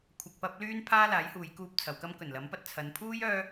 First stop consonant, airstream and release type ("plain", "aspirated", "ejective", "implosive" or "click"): aspirated